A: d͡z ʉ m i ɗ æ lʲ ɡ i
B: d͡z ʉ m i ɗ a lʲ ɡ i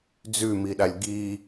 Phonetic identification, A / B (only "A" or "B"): B